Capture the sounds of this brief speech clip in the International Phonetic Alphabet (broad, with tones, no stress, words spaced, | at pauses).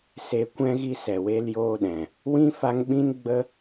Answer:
se˨kʷɛ̃˧ɣi˧ sɛ˨we˦ljoː˦ɗɛ̃˨ | wĩ˦fa˧ŋɓĩ˦nɡ͡bə˦